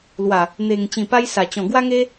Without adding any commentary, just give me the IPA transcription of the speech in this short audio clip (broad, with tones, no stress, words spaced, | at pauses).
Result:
lwa˨˩ | n̪e˨˩ŋ t͡ɕĩ˨˩pa˧jsa˨˩t͡ɕɔ̃˨˩ ɡwa˦ŋe˦